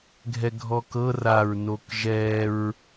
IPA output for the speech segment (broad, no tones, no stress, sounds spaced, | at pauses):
ɡʱ ɛ ɡʱ ɔ k ɤ r a ɹ n o k ʒ ɛ ɹ